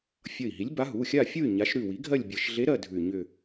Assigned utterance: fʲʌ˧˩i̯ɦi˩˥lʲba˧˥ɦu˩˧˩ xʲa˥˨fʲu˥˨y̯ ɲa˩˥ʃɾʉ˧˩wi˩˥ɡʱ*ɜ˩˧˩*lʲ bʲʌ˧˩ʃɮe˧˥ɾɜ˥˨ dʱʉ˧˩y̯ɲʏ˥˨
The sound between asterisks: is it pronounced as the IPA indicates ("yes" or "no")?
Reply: no